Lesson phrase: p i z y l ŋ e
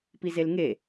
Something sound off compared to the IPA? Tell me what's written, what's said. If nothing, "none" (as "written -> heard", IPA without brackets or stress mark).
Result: y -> e